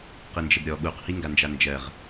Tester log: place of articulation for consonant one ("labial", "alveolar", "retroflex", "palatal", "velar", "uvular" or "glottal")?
uvular